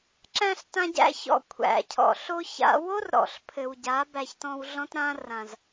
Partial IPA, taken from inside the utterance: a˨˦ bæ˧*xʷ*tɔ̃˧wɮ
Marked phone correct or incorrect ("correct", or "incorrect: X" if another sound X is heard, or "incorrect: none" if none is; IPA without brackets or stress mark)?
incorrect: ç